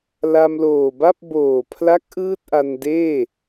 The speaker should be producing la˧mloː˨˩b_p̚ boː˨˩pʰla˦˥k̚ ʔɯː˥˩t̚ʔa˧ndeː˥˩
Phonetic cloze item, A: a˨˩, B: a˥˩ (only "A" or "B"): B